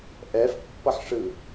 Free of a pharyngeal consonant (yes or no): no